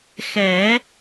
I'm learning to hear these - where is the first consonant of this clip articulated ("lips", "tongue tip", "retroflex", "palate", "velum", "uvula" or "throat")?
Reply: velum